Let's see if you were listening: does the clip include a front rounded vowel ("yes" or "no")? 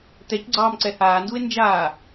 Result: no